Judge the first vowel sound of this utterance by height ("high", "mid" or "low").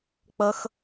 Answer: mid